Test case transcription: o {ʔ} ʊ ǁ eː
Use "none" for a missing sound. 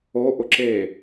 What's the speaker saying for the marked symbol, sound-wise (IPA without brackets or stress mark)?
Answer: ʔ